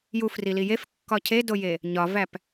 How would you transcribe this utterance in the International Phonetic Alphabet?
j u f r i l i j e f kː ɒ cʰ e d o j e | ɲ ɒ v æ p

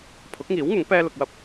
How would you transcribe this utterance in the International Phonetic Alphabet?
pʰ ʊ˨˥ k̚ ŋ iː˨˥ w ŋ ʊ˨˥ ŋ p ɛː˥ l ʊ˧ k̚ w ɐ˥ p̚

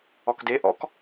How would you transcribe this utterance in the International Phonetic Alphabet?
ɔ k d e ʔ ɔ̰ k

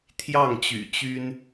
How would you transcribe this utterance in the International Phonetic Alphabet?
t̪ʰ j ɑ˥˩ ŋ t͡ɕ y̰˨˩ t͡ɕ y˥ n

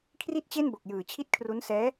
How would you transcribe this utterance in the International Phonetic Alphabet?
kʰ r i˥˩ t̚ t͡ɕ e˥˩ n b o˨˩ k̚ j ɯː˨˩ t͡ɕʰ i˥˩ t̚ kʰ r u˦˥ n s ɛː˦˥

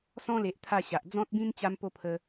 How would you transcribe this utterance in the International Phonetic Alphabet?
s ɔ̃˧ l e˨ ʔ t̪ʰ a˥˧ ɕ a˨ ʔ d͡z ɔ̃˦ t̚ b ĩ˦ n t͡ɕ a˦ m p o˦ pʰ ə˧

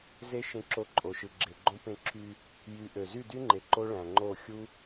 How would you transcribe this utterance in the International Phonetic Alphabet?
z e˦ ʃ ẽ˧ ǁ o˧ ǃʼ o˨ ʃ ɯ˨ ɡ͡ǁ e˨ ɡ͡ǃ õ˦ p ẽ˧ ǁʰ y˧ | j y˨˦ ʔ ø˨ z y˦˨ d y˦ ŋ͡ǃ e˨ ǃ o˦ ɭ æ̃˨ ŋ͡ǃ o˦˨ xʲ u˦

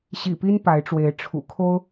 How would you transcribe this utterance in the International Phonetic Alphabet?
ɕ ḭ˨˩ p i˦ n p a˨˦ ɪ̯ ʈ͡ʂ w e˨˦ ɪ̯ ʈ͡ʂʰ ṵ˨˩ kʰ o˦ ʊ̯

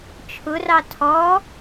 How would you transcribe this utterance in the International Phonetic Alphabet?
t͡ʃʰ ʊ r ɑ tʰ ɔ

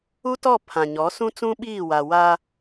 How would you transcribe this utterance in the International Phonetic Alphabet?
u˦ t ɔ˦˨ pʰ ã˨ ɲ ɔ˨˦ s ũ˦ t͡s ũ˦ ɓ iː˦˨ w a˨ w a˦

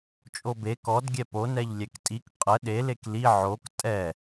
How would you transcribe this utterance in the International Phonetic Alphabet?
t͡ʃʼ o b e k ɔ d ɡʲ ɛ p o n ɛ ʎ lʲ ɛ k tʼ i k qʼ ə ɗ e l e k l i ʕ o k tʼ ɛ

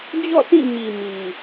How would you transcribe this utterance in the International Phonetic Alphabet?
d͡ʑ ɔ̰˦˨ sʰ ĩ˦˨ ɲ i˨ m i˨

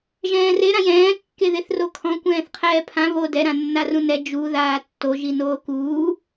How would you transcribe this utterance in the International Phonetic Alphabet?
ʒ ɛ̃ː r e ɾ ã j ɛ̃ː kː e ð e θ r o kʰ ɔ̃ kʷ ɛ̃ː θ qʰ ɛː pʰ ã β o d ɛ ɾ ã nː a r ũ n ɛ d͡ʒ u ð aː tː o ʒ i n oː k uː

